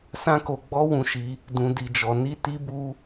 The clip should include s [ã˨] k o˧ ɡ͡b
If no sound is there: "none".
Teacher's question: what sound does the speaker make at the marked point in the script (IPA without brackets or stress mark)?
ã˦